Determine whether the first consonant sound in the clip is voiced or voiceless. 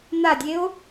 voiced